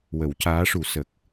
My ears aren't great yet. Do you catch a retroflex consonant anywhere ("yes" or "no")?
yes